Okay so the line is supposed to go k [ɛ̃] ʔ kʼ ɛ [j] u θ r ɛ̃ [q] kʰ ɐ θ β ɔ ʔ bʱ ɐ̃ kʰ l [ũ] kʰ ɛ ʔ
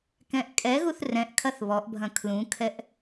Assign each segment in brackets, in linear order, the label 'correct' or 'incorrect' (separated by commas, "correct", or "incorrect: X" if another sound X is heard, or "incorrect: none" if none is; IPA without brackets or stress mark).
correct, incorrect: ɣ, incorrect: ʔ, correct